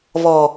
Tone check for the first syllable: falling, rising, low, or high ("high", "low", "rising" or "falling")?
low